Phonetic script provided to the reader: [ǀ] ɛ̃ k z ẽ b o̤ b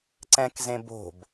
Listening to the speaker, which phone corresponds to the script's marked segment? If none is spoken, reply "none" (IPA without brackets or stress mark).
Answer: ǀ